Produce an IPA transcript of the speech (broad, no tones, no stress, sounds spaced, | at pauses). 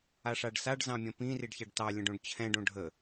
a ʂ a ɖ s a ɖ z ɑ̃ mʲ ɐ̃ p ĩ r i ɖ ç a ɖ t ɑ lʲ ə̃ ɖ õ ɖ t͡ɕʰ ɛ̃ ɖ õ ɖʱ ə